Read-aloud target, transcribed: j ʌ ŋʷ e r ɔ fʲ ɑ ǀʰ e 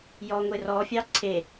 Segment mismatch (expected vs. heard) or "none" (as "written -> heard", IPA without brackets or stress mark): ʌ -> ɔ